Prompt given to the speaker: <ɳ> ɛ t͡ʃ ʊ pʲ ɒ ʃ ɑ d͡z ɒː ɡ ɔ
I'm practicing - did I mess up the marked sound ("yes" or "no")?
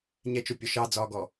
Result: yes